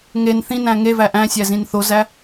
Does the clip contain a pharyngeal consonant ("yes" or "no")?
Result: no